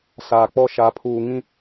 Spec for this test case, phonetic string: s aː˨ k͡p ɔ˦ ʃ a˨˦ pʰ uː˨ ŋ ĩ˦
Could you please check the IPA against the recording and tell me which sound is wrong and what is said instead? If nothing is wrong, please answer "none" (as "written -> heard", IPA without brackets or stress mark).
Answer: none